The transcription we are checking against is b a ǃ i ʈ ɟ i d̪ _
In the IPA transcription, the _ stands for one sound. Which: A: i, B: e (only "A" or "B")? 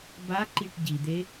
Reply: B